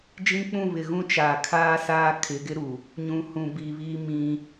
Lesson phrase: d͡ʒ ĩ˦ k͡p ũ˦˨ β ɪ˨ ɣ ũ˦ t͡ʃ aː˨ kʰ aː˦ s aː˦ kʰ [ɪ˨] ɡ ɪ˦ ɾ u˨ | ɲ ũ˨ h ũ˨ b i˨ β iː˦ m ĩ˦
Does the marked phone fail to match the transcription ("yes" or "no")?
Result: yes